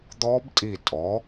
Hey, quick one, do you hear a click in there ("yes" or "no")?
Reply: no